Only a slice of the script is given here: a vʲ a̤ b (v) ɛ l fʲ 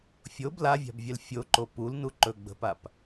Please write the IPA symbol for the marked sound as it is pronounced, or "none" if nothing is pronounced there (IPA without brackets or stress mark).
vʲ